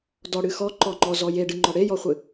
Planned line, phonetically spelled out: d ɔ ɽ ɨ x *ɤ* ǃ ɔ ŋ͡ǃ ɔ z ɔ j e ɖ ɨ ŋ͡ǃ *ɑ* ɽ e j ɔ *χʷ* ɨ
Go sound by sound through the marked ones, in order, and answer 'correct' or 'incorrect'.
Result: incorrect, incorrect, correct

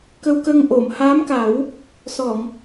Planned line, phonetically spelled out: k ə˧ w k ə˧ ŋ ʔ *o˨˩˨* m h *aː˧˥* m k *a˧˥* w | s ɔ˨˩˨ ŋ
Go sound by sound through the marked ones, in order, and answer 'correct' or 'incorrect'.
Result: correct, correct, incorrect

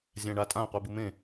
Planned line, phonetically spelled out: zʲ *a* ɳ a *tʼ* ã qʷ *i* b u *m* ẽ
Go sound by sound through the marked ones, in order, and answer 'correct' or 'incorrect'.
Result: incorrect, correct, correct, correct

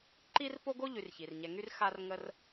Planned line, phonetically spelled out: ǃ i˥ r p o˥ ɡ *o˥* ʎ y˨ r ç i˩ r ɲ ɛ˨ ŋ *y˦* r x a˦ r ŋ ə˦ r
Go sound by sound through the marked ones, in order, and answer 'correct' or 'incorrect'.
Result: correct, correct

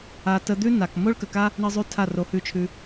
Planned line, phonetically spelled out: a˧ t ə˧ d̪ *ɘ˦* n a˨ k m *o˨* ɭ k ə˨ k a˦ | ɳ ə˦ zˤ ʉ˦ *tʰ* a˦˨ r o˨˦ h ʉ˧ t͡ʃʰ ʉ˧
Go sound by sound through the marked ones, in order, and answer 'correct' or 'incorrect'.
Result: incorrect, incorrect, correct

